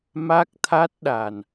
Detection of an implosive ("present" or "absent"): present